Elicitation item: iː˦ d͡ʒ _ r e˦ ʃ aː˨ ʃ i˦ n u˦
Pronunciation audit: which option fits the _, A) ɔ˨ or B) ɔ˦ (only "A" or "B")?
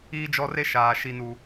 B